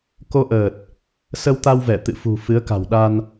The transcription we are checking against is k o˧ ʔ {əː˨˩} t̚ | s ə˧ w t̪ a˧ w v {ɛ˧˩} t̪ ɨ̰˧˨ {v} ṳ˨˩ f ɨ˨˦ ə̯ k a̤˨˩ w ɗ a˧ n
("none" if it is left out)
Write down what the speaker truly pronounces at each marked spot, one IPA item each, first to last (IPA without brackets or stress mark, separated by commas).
əː˨˩, ɛ˧˩, f